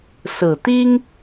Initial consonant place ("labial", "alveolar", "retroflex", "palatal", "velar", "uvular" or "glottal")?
alveolar